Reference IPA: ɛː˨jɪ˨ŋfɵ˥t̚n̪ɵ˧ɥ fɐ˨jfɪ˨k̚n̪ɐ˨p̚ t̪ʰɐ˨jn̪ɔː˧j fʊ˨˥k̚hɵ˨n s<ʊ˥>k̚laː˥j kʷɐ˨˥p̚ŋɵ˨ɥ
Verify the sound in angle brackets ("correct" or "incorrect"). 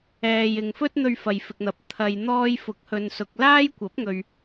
incorrect